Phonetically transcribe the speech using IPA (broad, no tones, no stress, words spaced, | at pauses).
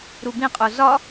ɾubĩqʼo zɒ